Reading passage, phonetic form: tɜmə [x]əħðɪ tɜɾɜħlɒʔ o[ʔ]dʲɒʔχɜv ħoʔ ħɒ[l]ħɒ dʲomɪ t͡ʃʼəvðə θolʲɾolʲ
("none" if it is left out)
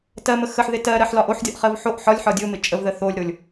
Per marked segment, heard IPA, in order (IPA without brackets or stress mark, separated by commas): x, ħ, lʲ